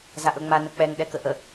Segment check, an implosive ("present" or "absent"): present